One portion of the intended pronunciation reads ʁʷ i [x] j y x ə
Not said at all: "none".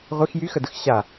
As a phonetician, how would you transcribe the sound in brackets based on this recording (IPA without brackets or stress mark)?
x